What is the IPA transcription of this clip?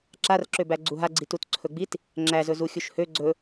ǁ a r ǁ ø b æ ɡ͡ǀ u ɦ a ɡ͡ǀ i t u t ǀʰ ɵ ɡ͡b i t | ŋ͡ǁ æ z ɵ z u xʲ u ʃ h ø ɡ͡ǀ ɵ

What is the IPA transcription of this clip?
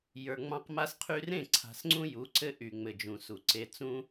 j ə˞˨ ŋ͡m ɑ̃˦ q m a˦ s qʰ y˦ r ẽ˦˨ ǀʰ a̤˨ s ŋ͡ǀ ũ˦ j u˨˦ ǀ ɘ˦ ʔ y˨ ŋ͡m ɘ˨ d͡ʒ ũ˨ s u˨ ǀ e˨ t͡s ũ˦

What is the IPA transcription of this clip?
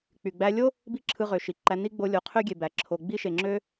k͡p y˩ ɡ͡b æ˧ lʲ o˥ | b i˥ ǁʰ ɯ˧ ʁ ø˩ ʃ i˩ ǃ æ˧ n i˥ ɡ͡b o˧ lʲ o˩ qʰ ø˥ ɡʲ e˩ b æ˩ ǁʰ o˩ ɡ͡b i˥ ʃ e˩ ŋ͡ǁ ø˥

